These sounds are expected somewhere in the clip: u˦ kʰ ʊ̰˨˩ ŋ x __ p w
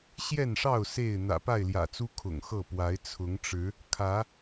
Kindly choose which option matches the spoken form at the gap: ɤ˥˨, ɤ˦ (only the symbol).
ɤ˥˨